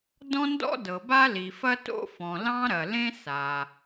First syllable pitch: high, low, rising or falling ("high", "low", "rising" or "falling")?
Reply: high